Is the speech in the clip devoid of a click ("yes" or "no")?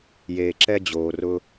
no